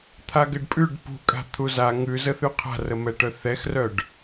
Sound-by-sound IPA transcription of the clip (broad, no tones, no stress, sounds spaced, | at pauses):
t̪ʰ a ɡ ɘ ɖ pʼ ʉ ɖ p ṳ kʼ a̤ t̪ʰ u z a ŋ ʉ z ə θ ʉ qʰ a̤ r ə m ɛ ʈ œ θ ɛ x r œ ɖ